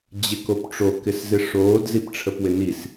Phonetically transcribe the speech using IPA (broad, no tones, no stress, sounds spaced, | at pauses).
d͡ʑ ɪ k o p ʈ͡ʂ o k ɪ s z ɪ ʂ oː d z i p ʈ͡ʂʰ ə p w ɪ n i s